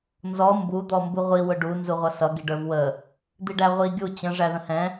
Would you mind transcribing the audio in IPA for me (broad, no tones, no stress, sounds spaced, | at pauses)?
n z ɔ m b u d̪ ɔ m b u ʁʷ i w ʊ ɖ u n z u ʁʷ ʌ s ʌ ɡ i ɖ ə˞ v w ə | d̪ i ɖ æ ʁʷ i ɡʲ u t͡ɕ ə̃ ʐ æ ð ə̃ h ɛ̃